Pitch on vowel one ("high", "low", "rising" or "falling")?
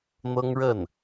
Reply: high